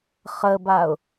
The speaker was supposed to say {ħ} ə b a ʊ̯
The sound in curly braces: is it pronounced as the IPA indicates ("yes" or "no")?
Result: no